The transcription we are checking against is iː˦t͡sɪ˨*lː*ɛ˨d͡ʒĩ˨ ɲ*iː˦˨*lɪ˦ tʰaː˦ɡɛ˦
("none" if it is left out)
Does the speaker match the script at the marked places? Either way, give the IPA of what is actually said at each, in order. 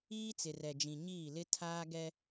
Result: r, iː˦˨

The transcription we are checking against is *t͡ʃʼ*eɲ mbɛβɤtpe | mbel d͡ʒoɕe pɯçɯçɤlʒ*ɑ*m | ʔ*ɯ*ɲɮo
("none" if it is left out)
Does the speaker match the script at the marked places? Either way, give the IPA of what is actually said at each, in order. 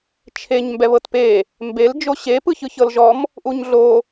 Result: t͡ʃʰ, ɔ, u

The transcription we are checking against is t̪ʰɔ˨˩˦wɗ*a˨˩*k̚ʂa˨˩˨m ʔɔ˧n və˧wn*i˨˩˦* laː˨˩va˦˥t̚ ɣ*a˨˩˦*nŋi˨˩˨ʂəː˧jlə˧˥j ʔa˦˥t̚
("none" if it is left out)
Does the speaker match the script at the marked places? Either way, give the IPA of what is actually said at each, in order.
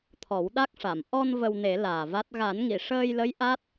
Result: a˦˥, e˨˩˦, a˨˩˦

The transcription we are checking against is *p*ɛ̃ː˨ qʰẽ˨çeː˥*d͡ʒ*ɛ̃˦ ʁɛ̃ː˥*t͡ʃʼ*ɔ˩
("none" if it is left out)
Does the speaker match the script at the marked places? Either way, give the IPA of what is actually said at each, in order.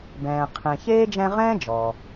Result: b, d͡ʒ, d͡ʒ

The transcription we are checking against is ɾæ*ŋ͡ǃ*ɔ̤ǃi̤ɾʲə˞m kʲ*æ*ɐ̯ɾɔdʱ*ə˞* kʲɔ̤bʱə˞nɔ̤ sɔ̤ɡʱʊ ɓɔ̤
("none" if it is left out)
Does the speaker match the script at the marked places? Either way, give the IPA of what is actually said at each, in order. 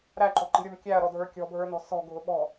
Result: ǃ, æ, ə˞

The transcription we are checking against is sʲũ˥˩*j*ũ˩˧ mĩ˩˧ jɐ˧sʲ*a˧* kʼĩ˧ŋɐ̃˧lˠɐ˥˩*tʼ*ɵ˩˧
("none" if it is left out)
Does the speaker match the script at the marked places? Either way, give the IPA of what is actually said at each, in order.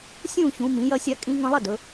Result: ç, a˧, d

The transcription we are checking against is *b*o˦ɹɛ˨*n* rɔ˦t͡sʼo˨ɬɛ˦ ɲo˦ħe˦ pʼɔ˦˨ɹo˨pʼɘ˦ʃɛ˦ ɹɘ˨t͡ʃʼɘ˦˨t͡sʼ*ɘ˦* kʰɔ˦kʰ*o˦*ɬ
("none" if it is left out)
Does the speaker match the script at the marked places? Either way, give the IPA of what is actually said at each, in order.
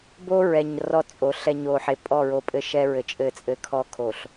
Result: b, ɲ, ɘ˦, o˨

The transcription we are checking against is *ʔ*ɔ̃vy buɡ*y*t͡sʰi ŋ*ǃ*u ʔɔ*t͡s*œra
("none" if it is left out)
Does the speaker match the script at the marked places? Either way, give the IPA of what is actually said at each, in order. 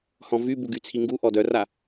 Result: h, y, ɡ, d

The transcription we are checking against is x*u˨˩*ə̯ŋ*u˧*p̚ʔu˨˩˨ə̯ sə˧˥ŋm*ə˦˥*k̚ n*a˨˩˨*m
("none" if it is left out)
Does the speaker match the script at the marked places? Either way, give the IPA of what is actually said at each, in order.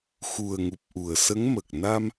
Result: u˨˩, u˨˩, ə˨˩, a˧

